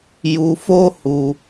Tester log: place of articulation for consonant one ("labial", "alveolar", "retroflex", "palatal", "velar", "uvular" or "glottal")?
palatal